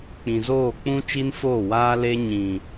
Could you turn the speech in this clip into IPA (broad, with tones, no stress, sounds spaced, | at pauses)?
k͡p ĩ˨ z oː˦˨ k͡p ũ˦ t͡ʃ i˦ n f oː˦˨ w aː˦ l e˦ ɲ ĩ˨